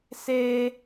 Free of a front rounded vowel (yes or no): yes